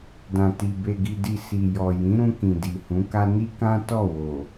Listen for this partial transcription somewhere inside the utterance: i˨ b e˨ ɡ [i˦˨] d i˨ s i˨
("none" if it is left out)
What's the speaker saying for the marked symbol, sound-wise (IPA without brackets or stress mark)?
i˨